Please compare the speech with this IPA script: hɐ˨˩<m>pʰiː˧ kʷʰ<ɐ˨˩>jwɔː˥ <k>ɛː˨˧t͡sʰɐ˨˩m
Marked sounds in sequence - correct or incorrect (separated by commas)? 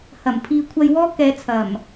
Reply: correct, incorrect, correct